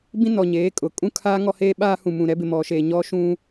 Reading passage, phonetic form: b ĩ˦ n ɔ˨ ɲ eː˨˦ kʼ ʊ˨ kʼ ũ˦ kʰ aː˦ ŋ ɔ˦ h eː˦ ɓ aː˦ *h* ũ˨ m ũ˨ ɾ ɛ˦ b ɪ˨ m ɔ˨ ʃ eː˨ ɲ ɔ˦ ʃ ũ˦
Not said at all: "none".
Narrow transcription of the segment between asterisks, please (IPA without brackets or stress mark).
h